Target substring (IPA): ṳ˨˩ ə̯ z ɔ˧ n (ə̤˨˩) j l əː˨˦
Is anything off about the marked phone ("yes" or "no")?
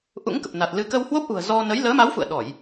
yes